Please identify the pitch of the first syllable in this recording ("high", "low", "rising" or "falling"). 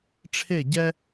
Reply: falling